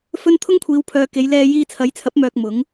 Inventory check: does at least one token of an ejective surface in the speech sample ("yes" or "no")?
no